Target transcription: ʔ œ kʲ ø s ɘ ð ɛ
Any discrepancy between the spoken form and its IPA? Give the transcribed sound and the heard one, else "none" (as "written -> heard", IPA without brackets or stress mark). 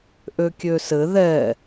œ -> ø